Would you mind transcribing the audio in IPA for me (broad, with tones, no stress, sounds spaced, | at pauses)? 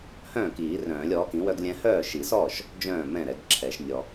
h œ̃ː˥˩ k iː˨˩˦ r œ̃ː˨˩˦ lʲ ɔː˩˥ k ĩ˩˥ w œ˦ ɡ lʲ ɛ̃˦ h œː˥˩ ʃ i˨˩˦ s ɔː˥˩ ʃ | d͡ʒ œ̃ː˥˩ m ɛ̃˥˩ ɾ ɛ˨˩˦ ɡ ǁʰ ɛ˨˩˦ ʃ nʲ ɔ˨